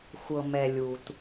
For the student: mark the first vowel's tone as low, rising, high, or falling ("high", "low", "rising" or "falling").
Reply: low